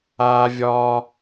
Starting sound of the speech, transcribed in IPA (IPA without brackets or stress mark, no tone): aː